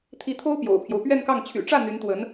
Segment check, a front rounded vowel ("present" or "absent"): present